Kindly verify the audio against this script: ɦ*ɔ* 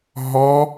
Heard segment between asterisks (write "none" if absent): ɔ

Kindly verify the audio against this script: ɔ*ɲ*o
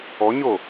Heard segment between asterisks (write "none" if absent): ɲ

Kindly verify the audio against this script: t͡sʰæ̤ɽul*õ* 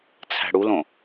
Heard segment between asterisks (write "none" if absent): õ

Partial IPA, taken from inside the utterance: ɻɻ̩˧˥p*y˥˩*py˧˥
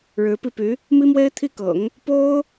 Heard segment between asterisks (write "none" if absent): i˥˩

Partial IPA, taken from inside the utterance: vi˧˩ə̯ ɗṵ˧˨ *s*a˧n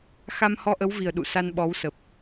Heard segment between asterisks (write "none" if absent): s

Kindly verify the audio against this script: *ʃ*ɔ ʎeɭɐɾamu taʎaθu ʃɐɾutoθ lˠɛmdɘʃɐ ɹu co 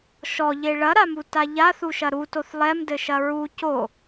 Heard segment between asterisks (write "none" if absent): ʃ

